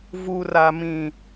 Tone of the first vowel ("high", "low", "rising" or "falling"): low